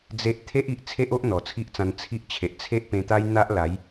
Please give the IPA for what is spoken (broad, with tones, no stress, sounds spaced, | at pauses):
d͡z e˦ ʔ t̪ʰ e˦ ʔ i˨ ʔ t͡sʰ e˦ ʔ o˦ ʔ n̪ ɔ˨˩ t͡sʰ i˦ ʔ t͡s ã˧ n t͡sʰ i˦ ʔ t͡ɕʰ e˨ ʔ t͡sʰ e˦ ʔ p ẽ˧ t̪ a˦ j n̪ a˦ ʔ l a˨˦ j